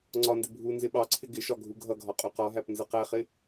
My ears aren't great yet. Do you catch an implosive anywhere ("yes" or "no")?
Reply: yes